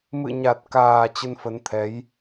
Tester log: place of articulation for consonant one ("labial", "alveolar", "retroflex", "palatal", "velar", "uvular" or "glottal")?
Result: labial